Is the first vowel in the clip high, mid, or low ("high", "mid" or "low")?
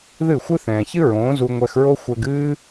high